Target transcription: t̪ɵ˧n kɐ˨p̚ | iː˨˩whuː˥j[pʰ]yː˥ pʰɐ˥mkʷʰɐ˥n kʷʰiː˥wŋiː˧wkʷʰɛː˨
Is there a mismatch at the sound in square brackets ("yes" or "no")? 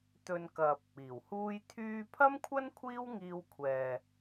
yes